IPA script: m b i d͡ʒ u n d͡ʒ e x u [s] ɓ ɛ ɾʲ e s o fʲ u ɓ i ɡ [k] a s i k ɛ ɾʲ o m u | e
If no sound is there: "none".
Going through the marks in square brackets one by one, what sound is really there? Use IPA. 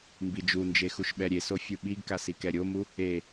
ʃ, k

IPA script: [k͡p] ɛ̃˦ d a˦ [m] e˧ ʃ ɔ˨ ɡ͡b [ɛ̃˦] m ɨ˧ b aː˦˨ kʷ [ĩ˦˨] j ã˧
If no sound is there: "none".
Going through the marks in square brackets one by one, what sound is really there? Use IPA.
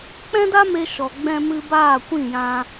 k͡p, m, ɛ̃˧, ĩ˦˨

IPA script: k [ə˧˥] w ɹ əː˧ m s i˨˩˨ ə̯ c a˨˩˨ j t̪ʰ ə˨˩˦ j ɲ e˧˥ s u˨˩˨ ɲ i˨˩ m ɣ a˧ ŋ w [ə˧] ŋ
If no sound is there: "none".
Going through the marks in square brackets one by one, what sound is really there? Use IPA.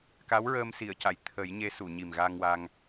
a˧˥, a˧

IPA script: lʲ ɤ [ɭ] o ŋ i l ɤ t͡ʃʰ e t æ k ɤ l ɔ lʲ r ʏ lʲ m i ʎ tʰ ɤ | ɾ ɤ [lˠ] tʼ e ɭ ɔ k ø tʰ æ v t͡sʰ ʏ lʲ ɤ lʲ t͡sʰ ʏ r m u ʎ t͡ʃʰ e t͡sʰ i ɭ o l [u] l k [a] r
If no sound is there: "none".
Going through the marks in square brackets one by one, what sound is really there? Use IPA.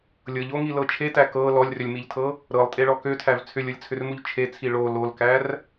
ʎ, lˠ, o, æ

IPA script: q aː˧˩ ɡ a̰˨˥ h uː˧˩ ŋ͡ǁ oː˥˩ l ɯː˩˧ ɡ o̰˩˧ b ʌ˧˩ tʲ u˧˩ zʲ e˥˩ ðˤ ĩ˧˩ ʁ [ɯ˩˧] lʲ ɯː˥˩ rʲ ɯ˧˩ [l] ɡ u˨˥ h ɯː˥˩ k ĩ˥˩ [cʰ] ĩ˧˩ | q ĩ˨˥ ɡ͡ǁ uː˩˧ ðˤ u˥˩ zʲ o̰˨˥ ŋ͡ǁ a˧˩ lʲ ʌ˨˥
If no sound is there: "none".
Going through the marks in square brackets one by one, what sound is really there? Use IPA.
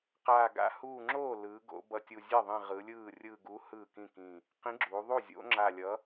ɯ˩˧, none, k

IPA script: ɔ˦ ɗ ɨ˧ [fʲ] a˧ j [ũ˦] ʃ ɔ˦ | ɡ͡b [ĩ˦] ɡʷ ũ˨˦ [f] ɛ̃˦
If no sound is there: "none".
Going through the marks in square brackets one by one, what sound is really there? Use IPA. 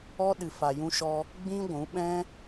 f, ũ˦, ĩ˦, ɓ

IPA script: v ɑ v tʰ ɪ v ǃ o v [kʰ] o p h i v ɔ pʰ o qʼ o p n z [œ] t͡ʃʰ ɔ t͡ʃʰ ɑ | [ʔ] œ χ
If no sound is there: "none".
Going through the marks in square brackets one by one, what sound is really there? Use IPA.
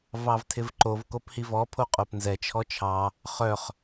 k, ɛ, χ

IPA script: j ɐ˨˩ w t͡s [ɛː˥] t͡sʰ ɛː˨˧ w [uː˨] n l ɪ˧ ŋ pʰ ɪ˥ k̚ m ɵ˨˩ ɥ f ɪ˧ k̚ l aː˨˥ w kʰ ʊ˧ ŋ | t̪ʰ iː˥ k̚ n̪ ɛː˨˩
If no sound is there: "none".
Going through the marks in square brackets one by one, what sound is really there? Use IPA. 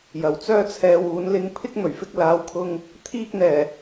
œː˥, uː˨˥

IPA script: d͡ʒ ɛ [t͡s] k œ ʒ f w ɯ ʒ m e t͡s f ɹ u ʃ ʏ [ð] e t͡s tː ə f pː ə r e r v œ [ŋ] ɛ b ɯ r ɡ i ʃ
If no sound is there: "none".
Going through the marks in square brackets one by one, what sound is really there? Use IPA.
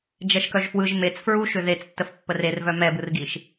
ʃ, ð, m

